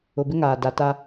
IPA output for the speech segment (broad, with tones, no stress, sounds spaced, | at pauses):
ʊ˨ b ɪ˦ ŋ aː˨ d a˨ t a˦